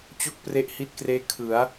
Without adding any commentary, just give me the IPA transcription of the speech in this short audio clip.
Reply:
t͡ɕo˥˩k̚ pre˦˥ʔhi˦˥t̚kreː˦˥ kʰɯ˩˦a̯

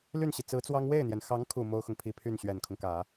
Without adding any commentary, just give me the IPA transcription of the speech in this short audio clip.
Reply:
ly˥˩nɕi˩ t͡sɹ̩˧˥t͡swɑ˥ŋ we˥˩ɪ̯n̪jɛ˩nxɑ˧˥ŋkʰu˨˩ mo˥ʊ̯xʊ˨ŋpʰi˥˧pʰy˥˩n ɕɥɛ˨˩nkʰʊ˦ŋkä˨˩˦

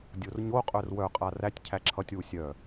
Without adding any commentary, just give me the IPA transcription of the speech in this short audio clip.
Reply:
dʲorɲoqʼœr wœqʼa rætʲ cʰæǁʰʌtʲwu sʲœ

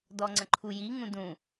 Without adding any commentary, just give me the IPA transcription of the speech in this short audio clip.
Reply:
dɔŋ͡ǀə̃ǃʰuji ŋũdũ

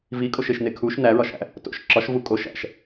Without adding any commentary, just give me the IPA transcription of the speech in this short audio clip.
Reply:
vikʼoʃeʃne kʰuʃ næɹɒʃæ̰ | to̰ʃ ǁɒʃvu kʼo ʃæ̰ʃ

